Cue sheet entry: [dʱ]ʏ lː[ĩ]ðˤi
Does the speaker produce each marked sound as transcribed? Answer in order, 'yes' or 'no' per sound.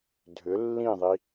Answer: yes, yes

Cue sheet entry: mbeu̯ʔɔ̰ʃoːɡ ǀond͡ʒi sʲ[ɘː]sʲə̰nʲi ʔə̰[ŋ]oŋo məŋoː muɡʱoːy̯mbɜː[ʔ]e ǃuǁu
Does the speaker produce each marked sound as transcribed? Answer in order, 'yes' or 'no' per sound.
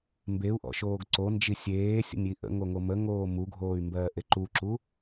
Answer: no, yes, yes

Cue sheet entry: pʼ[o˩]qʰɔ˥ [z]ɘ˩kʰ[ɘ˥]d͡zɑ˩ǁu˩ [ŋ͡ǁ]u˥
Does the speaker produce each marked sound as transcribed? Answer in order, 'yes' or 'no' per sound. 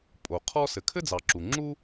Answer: yes, no, yes, yes

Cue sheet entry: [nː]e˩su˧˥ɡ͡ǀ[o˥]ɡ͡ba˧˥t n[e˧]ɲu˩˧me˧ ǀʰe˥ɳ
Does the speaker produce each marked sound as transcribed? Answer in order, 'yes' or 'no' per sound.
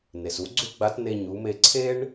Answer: no, no, yes

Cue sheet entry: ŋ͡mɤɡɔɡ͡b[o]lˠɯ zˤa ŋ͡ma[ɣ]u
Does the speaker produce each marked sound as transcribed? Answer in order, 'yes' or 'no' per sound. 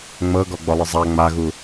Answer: no, yes

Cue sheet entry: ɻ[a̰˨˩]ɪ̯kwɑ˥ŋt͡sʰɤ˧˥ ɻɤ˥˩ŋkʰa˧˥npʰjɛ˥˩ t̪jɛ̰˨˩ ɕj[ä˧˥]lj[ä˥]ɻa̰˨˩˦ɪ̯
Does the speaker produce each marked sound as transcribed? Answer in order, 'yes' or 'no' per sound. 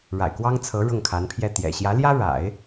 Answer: yes, yes, yes

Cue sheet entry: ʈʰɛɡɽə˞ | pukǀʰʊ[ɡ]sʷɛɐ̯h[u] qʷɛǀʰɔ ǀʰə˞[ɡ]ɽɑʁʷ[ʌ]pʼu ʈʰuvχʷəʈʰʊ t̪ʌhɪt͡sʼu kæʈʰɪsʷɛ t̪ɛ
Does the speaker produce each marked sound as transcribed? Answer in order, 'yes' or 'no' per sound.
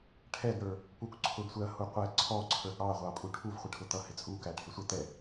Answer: yes, yes, yes, no

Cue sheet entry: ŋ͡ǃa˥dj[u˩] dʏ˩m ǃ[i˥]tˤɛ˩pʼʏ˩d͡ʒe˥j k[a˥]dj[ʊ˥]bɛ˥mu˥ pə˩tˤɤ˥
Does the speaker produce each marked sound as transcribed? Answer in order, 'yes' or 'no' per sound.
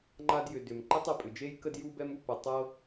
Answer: no, no, no, no

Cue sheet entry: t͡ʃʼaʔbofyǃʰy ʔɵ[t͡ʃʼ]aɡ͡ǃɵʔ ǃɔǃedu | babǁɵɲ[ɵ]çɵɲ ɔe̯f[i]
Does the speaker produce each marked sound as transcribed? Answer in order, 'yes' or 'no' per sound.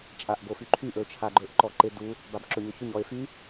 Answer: no, yes, no

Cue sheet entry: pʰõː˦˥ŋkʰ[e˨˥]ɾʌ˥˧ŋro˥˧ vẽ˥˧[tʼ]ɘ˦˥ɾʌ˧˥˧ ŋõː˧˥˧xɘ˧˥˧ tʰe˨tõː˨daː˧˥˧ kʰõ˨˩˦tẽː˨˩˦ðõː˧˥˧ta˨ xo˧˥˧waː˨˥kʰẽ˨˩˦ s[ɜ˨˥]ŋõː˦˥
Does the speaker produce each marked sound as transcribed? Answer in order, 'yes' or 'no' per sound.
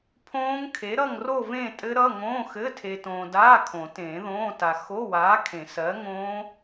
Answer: yes, yes, yes

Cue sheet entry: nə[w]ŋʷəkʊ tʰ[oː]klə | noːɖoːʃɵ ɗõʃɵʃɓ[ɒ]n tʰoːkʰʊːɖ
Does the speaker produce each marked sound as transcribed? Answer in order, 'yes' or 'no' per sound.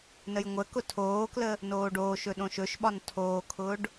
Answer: no, yes, yes

